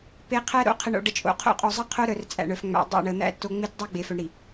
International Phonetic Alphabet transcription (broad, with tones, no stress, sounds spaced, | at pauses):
p e˨ qʰ æ˦ ɾ o̰˦ qʰ ə˨ ɳ o̰˨ ɖ ə˨ t͡ʃʼ o̰˨ qʰ o̰˦ qʼ o˨ zˤ ə˦ qʰ o˦ ɾ œ˨ r t͡sʼ æ̰˨ ɳ œ˨ f ŋ͡m æ̰˨ dˤ æ̰˦˨ ɳ ə˨ n̪ æ̰˦ t o˦ ŋ͡m e˦ t dˤ o˦ ɡ͡b e˨ f œ˨ ɳ ɾ i˨